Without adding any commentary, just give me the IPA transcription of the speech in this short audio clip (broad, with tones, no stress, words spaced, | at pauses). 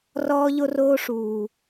rɔː˧ʎo˧roː˧ʂuː˨